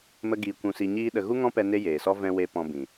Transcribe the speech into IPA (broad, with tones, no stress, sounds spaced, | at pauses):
m ə˦ ɡ iː˧ kʷ ũ˧ s i˧ ɲ iː˦ ɗ ə˧ ɣ u˦ ŋ ɔ̃˦ p ɛ˧ n e˦ j eː˨ s ɔ˦ v ɛ̃˧ w e˧ p ɔ̃˧ b ĩ˨